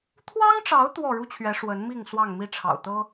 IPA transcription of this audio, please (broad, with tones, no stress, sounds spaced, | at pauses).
t̪ʰ w ɑ˦ ŋ ʈ͡ʂ ɑ˨˦ ʊ̯ t̪ w ɔ˥˨ ɻ u˦ t͡ɕʰ ɥ ɛ˨˦ ʂ w ə˨˦ n m i˥˨ ŋ s w ɑ˥˨ ŋ m i˦ ʈ͡ʂʰ ɑ̰˨˩ ʊ̯ t̪ ɤ˦